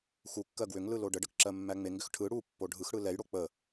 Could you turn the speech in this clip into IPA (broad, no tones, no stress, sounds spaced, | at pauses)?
x u kː ɜ ɡ w ʏ ŋ l ɯ l o ɖ ə ɖ ə k ǁ ɜ mː æ ŋ͡m e ŋ ɡ ʏ x ʈʰ ɯ ɽ u pː o ɖʱ ɯ x ɽ ɯ l ɛ j ɽ o k͡p ə